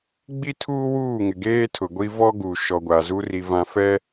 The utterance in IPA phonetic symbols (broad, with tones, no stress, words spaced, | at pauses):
ɡ͡bi˦tʰuː˦wuː˦˨ŋɪ˨ ɡeː˦tʰʊ˨ɡʷi˦ vɔ˦ɡu˨ ʃɔ˨ɡʷa˨zu˦ ri˦vã˦ fɛ˦